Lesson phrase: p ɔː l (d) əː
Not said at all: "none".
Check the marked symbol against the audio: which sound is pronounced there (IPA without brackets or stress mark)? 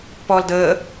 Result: d